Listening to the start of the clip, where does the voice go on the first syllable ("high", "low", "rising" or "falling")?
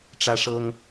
high